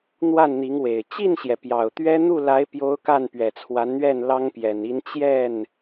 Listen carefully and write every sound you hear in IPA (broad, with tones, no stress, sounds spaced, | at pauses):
n̪ w a˥˩ n n̪ i˧˥ ŋ w e˨˩ ɪ̯ t͡ɕ i˥˩ n ɕ j ɛ˩ p j ɑ˨˩ ʊ̯ t̪ ɥ ɛ˥ n̪ u˥˩ l a˧˥ ɪ̯ p j o˧˥ ʊ̯ k a˥˩ n p ɥ ɛ˨˩ t͡sʰ w a˧˥ n n̪ ɥ ɛ˥˩ n l ɑ˥ ŋ p j ɛ˨˩ n i˧˥ n t͡ɕ j ɛ˥˩ n